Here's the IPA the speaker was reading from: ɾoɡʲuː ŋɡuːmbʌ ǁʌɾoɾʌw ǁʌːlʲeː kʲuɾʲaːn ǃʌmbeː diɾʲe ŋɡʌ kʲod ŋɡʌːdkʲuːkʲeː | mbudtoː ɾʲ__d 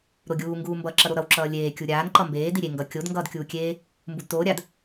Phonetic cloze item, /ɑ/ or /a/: a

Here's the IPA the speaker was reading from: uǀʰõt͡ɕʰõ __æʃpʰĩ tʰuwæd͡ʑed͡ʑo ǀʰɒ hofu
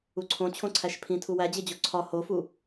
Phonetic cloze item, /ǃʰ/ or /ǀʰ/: ǀʰ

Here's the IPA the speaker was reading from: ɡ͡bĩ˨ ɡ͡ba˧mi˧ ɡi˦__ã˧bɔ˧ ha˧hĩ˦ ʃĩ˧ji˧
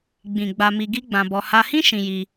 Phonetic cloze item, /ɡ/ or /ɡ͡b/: ɡ͡b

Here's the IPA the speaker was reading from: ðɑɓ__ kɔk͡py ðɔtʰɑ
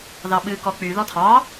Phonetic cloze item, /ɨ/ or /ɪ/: ɨ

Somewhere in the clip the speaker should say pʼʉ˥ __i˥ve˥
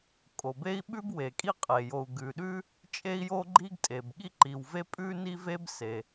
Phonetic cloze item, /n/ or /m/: n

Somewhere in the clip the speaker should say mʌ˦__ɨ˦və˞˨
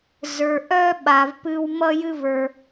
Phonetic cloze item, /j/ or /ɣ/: j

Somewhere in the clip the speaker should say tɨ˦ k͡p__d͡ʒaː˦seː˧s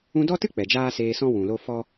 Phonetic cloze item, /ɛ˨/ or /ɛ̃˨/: ɛ˨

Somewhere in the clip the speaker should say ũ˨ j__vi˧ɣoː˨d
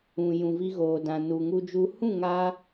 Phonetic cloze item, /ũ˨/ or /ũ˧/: ũ˨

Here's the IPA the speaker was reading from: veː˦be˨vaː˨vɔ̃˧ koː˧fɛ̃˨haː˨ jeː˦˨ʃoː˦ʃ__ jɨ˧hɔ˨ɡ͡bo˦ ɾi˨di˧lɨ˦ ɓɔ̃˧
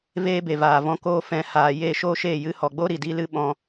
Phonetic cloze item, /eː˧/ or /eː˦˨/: eː˦˨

